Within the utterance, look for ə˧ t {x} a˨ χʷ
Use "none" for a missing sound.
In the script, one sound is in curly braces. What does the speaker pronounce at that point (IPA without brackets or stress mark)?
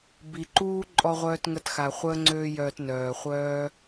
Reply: x